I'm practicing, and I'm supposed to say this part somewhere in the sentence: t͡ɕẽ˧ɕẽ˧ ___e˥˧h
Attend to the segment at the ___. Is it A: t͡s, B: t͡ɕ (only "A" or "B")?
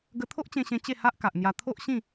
B